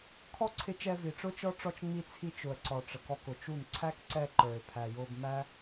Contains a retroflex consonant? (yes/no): yes